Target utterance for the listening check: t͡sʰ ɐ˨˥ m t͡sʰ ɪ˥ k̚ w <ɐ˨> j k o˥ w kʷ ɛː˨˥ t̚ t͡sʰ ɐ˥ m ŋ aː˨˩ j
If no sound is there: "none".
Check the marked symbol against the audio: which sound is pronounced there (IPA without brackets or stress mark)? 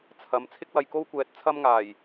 ɐ˨